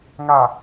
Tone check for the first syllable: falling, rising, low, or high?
low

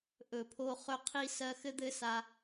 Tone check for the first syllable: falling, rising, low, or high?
low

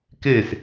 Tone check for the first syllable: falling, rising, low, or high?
falling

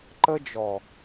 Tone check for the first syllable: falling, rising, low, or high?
high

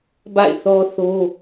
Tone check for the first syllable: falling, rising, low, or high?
falling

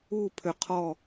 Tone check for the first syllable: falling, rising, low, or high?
falling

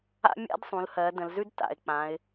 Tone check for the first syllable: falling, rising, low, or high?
high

